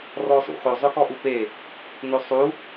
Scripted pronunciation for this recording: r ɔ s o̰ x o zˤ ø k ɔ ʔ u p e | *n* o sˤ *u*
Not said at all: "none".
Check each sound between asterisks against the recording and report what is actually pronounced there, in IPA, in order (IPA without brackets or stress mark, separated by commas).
n, u